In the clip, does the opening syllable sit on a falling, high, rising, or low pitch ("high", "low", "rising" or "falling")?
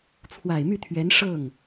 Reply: low